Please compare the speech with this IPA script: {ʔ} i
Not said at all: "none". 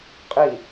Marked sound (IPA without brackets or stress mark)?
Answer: qʼ